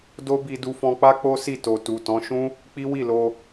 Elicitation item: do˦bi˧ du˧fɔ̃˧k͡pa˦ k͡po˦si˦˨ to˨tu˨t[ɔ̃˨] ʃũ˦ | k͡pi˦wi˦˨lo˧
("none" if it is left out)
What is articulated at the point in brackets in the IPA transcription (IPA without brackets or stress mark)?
ɔ̃˨˦